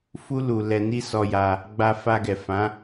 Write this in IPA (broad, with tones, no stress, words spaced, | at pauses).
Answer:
fu˦ lu˧ lɛ˧ni˦sɔ˧ja˧ | ɡ͡ba˧ fa˧ɡɛ˨ fã˨˦